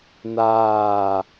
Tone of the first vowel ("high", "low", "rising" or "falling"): falling